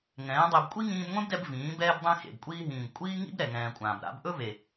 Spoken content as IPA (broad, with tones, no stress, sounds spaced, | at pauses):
ŋ ɛ̃ː˨˦ dˤ e˧ b kʷʼ i˦ ŋ ĩː˧ b ŋʷ ẽ˦ b d ɛ˧ b v ĩː˨˦ b ɛː˦ b dˤ ẽ˦ x ḛ˨ b kʷʼ iː˧ ɦ ĩː˨ b kʷʼ iː˦ ŋ ḭ˦ b ɾ ɛ˨ ŋ ɛ̃ː˨ kʷʼ ãː˨ b ɾ a̰˧ b ʔ ɵ˦ v e˨